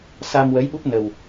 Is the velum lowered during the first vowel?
no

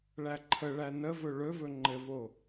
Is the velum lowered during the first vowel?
no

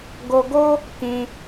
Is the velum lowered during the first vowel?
no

